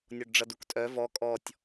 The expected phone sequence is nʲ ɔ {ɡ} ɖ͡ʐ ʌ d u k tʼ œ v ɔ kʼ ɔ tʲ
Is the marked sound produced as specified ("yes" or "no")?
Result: no